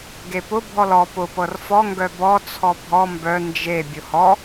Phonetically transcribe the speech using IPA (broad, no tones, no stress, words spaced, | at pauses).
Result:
ɡepʊ bʱɔlɔ pʊ pɤrfɔ ŋɡœbɔ t͡sʰɔbʱɔ mbœ nd͡ʒe bʲʊhɔ